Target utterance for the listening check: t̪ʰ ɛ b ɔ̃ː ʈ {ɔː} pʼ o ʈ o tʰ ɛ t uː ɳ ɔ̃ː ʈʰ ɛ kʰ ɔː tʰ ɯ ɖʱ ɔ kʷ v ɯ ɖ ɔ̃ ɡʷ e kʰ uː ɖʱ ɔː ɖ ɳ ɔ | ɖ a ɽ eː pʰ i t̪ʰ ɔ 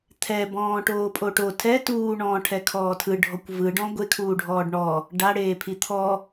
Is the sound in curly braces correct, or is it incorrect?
incorrect